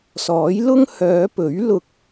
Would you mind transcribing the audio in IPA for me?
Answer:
s ɔː˨˥ j l ʊ˥ ŋ h œː˨˧ p ɵ˨˥ ɥ l ʊ˧ k̚

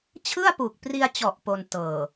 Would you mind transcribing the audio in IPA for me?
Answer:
t͡ɕʰ ɯ˥˩ a̯ p u˨˩ k̚ p r i˧ a̯ t͡ɕ ɔ˨˩ ʔ p o˧ n t ɤː˨˩

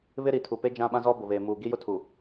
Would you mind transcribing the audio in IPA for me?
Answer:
β ɪ˦ ɾ i˨ tʰ u˨ p e˦ d͡ʒ ã˦ ɓ ã˦ z ɔ˦ b ʊ˨ β eː˨ m uː˨ ɡ i˦ j ʊ˦ tʰ u˨

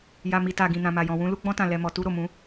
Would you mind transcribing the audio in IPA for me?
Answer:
j a˨ m i˨ t a˨ ɡ ĩ˨ n ã˨ m a˨ j ɔ̃˨ w ũ˧ l u˧ ɡ͡b ɔ̃˧ t ã˨ l ɛ˨ m ɔ˨ t u˧ ɾ o˨ m ũ˨˦

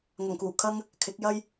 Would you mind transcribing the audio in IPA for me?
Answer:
ŋ ɐ˨˩ ŋ k uː˨˩ kʰ ɐ˥ ŋ | kʰ ɪ˨˥ k̚ j ɐ˥ j

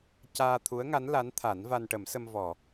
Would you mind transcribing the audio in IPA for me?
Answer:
c aː˧ t̪ʰ u˧˥ ə̯ ŋ a˧˥ n l a˧˥ n t̪ʰ a˨˩˦ n v a˧ n ʈ ə˨˩˦ m s ə˧ m v ɔ˨˩˨

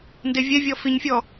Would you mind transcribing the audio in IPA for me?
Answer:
n d e vʲ ɛ vʲ ɔ f i ɲ fʲ ɔ

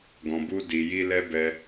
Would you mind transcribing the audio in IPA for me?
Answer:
ɡ ɔ̃˧ b u˦ d i˧ j i˦ l ɛ˦ b ɛ˧

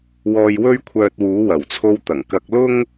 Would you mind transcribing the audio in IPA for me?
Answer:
w ɔː˧ j w ɵ˥ ɥ kʷʰ œː˧ t̚ w uː˨˥ w ɐ˨˩ w t͡sʰ o˧ w t̪ ɐ˨˩ ŋ k ɐ˧ k̚ l ʊ˥ ŋ

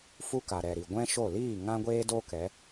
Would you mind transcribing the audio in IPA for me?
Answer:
f u˦ k a˨ ɾ ɛ˨ ɾ i˨ ɡʷ ɛ̃˦ ʃ o˦˨ l iː˦˨ ŋ ã˦ ɡʷ eː˦ d o˦ k ɛ˨˦

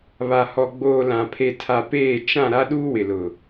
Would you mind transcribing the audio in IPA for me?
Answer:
β a˨ h ɔ˨ ɡ͡b oː˨ l ã˨ pʰ e˨ tʰ a˨ p eː˦˨ t͡ʃ ã˦˨ ɾ a˦ ɗ uː˦ w ɪ˨ l ʊ˨

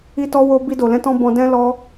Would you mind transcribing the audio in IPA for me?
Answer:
i˦ t ɔ˦ w o˦ b i˧ d o˨ l ɛ̃˧ t ɔ̃˧ b ɔ̃˧ d ɛ̃˦ l ɔ˦

